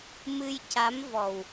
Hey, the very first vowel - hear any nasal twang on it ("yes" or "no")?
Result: no